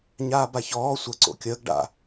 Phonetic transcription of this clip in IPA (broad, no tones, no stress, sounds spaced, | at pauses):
ɲ aː b a ç ɔː sʷ ə ǀ o̰ kʲ əː ɡ ɖ a̰